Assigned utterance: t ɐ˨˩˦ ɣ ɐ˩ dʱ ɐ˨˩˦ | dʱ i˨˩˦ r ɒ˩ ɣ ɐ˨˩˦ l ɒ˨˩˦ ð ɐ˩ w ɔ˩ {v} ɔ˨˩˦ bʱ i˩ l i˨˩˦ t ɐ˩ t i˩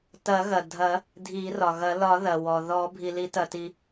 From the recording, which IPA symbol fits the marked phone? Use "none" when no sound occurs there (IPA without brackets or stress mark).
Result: ð